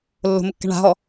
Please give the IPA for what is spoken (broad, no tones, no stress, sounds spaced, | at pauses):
lː o̤ m ə kː æ̤ ɳ a̤ ɦ ɔ